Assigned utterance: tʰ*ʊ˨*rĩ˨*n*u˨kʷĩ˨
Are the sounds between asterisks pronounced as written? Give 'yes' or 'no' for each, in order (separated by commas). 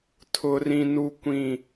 yes, yes